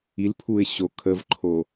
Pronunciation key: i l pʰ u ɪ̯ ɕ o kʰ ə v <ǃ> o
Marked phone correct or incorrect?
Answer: incorrect